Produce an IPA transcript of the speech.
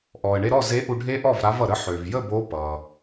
ʔ ɔ˩ ə̯ ɳ e˧ ɾ ɔ˥˩ z e˨˥ ʔ u˧ ɖʱ e˦˥ ʔ ɔ˥˩ v ɾ a˨˥ v ʌ˩ ɾ ə˨˥ ħ ø˩ v j ə˥˩ b o˨˥ p ʌ˩

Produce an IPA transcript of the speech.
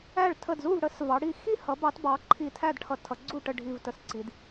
æ˧˩ ɭ tʰ ə˧˩ d z u˥˨ v ɽ ə˩˧ s v ɑ˩˧ ɽ i˧˩ x i˥˨ h ʌ˩˧ b ɑ˩˧ t b ɑ˩˧ ǃʰ i˧˩ tʰ æ˥˨ d ʈʰ ʌ˧ tʰ ʌ˩˧ ɡ͡ǀ u˥˨ ʈ ə˥˨ ɖʱ i˧˩ v t ə˧ s ǀ i˩˧ d

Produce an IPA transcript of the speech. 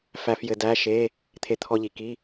f æ˧ f j ɘ˧ d æ˧˥˧ ʃ e˧˥˧ | t̪ʰ e˧ t̪ʰ ɔ˧ ʎ i˩ k i˧˥˧

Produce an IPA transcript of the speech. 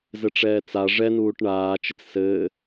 z ɘ ʈ͡ʂ ɛː t͡s a ʐ ɛ n uː ʈ ɳ aː t͡ʃ ɪ t͡s s ɘː

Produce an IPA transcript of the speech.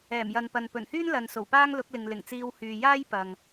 ɛː˨˩ m j ɐ˨ n p ɐ˨ n p ɵ˨˩ n h yː˥ n l ɐ˨ n s o˨˩ w p aː˥ ŋ l ʊ˨˥ k̚ l ɪ˨ ŋ l ɪ˨˩ ŋ t͡s iː˧ w h yː˨ j aː˥ j p ɐ˨ ŋ

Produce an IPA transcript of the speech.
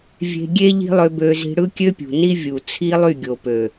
vʲ e̤˧ ɡʲ e˦ ʎ i̤˦ lˠ ø˧ b ø˧ z i̤˧ ɽ ɯ˦ kʲ ø˦ pʲ ṳ˨ n i˦ vʲ u˨ t͡sʰ i˦ lˠ y˦˨ ɡʲ o˨ p ø˨

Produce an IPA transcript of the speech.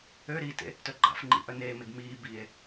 ø ɾ i t ḛ | t œ ɡ͡ǃ a̰ f ŋ͡ǃ ḭ ʔ œ n eː m e ɡ m iː b iː e̯

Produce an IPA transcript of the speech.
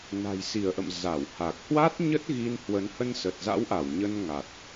n a̤˨˩ j s i˧˩ ə̯ ʔ ə̰˧˨ m z a˧˩ w h a˨˩ k̚ h w a˦˥ t̚ ɲ ə˦˥ t̚ ɣ i˧ n h w ə˨˦ n h ə˧ n s ə˨˩ t̚ z a̰˧˥ w ʔ a˧˩ w ɲ ə˧ n ŋ a˨˩ t̚

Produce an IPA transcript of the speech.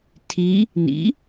tʰ i | n ḭ

